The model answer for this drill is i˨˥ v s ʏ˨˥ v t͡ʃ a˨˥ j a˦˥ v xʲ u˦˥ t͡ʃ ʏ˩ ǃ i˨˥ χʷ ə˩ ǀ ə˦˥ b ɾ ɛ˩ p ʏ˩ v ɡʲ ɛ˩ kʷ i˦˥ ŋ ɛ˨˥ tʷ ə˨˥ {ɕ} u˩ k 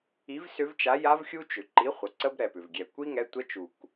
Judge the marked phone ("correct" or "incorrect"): incorrect